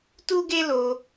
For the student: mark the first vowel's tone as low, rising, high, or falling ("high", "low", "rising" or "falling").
high